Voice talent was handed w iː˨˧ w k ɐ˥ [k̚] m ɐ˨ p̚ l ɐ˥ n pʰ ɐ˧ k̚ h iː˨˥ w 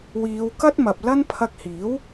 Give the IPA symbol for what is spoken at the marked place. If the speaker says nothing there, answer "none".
t̚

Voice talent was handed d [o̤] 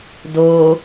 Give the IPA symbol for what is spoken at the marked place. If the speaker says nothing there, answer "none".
o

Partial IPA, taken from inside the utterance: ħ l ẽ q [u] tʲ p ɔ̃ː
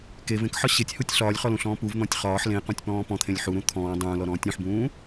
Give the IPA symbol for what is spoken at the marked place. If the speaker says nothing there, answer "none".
ũ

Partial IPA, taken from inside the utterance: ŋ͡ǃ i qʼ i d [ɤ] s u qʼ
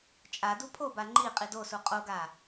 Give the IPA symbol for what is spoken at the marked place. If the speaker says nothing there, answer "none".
o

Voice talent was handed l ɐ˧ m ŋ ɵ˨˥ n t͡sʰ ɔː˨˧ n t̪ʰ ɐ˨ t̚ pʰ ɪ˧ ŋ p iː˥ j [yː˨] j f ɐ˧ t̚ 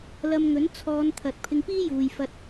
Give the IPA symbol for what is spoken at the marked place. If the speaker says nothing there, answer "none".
uː˨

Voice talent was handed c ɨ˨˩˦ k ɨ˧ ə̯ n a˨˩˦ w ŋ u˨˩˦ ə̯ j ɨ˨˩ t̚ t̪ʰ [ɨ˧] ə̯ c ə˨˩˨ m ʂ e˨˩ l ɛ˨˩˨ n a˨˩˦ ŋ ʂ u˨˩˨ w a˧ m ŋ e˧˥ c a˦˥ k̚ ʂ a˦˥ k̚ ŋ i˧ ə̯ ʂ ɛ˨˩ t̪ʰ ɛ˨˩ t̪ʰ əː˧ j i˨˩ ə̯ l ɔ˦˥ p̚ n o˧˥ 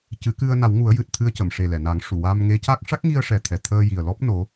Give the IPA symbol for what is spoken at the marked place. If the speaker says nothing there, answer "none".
ɨ˧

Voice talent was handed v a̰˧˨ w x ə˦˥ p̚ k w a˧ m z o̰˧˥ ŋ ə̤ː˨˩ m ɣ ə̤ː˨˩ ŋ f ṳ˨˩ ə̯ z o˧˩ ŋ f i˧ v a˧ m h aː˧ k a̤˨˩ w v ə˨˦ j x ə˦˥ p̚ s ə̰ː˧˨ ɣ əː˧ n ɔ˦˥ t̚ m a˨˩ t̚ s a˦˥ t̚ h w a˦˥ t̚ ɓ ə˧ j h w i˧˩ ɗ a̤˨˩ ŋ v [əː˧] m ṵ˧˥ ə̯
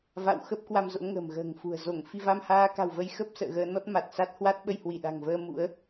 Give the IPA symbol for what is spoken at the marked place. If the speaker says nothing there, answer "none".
əː˧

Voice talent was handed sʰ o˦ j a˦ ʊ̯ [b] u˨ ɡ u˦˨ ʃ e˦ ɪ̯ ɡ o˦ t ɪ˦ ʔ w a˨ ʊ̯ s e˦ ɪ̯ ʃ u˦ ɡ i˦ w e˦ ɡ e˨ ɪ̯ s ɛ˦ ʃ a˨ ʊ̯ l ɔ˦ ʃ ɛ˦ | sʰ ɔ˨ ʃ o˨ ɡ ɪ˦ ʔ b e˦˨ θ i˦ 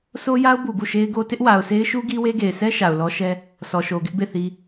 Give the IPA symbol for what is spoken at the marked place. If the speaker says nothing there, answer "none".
b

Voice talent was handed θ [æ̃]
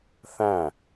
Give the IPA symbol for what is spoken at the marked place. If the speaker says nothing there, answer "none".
æ̃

